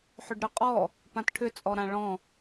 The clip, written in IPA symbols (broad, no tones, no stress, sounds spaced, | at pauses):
ħ ʏ ɖ ɾ ʏ qʼ ɔ | p ã t ʈʰ ʏ t͡sʼ ɔ ɾ ã ɭ ɔ̃